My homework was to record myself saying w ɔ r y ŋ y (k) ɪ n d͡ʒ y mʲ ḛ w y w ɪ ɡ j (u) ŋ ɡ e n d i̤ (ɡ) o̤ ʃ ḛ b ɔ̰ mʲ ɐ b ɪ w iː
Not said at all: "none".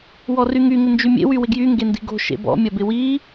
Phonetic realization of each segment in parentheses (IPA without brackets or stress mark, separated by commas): ŋ, y, ɡ